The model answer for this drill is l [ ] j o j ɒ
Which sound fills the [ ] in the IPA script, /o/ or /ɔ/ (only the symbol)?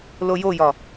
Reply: o